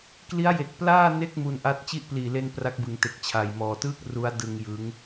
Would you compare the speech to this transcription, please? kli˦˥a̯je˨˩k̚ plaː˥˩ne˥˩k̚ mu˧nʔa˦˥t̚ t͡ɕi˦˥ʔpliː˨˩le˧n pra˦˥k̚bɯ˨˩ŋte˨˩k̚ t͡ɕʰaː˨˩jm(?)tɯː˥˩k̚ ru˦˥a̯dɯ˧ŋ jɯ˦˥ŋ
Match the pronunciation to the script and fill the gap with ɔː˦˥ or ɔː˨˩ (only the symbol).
ɔː˨˩